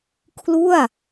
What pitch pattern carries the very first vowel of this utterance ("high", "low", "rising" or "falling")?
falling